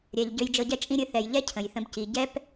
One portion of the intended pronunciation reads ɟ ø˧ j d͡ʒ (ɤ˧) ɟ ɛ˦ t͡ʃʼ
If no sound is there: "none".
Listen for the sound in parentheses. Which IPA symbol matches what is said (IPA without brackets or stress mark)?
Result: ɤ˧